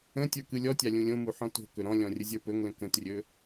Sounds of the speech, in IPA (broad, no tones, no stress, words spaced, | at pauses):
ə̃tʲə˞ kɯlʲɔtʲa lʲũlʲõmu ħɔ̃to̤kɵ ɾɔ̃lʲɔ̃ rʲəzʲə˞pɵŋlə̃ kə̃trʲɵ